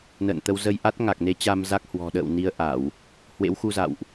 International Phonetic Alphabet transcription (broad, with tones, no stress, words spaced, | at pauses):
nə̰ː˧˨nt̪ə˧w zə˧jʔa˦˥t̚ ŋa˨˩k̚ne˨˦ t͡ɕa˧mza˦˥k̚ hwɔ̤˨˩ɗə̰ː˧˨w ni˧ə̯ ʔa˧˩˨w | hwḛ˧˥wxu˧za̰˧˨wʔ